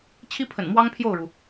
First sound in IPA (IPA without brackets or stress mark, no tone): t͡ɕʰ